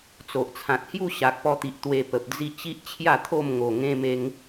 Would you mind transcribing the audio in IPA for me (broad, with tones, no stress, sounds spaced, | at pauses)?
t͡s o˨ ʔ t͡sʰ ã˨ t̚ h j u˥˧ ɕ a˨ k̚ p ɔ˧ t̪ i˨ ʔ t̪ w e˧ p ə˨ p̚ d͡z i˥˧ t͡ɕ i˦ ʔ t͡ɕʰ j a˥˧ t̪ʰ o˥˧ m ŋ o˨˩ ŋ ẽ˦ m e˦ ŋ